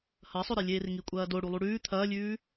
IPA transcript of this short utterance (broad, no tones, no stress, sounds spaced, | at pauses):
h ɐ sˤ ɵ ɾ e lʲ eː r ŋ i kʷʼ ɐː d o ɽ u lˠ u ɽ ʉː t̪ʰ ɐː lʲ ʉː